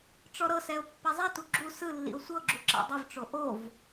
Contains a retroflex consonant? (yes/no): yes